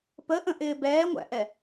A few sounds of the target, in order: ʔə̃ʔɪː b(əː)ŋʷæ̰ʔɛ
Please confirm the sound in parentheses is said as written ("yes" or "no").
no